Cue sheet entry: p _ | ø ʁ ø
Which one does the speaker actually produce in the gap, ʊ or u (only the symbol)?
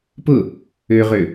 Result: ʊ